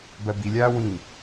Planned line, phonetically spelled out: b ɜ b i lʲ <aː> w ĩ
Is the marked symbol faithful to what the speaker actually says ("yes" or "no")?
yes